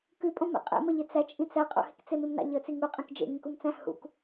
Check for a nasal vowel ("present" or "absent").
present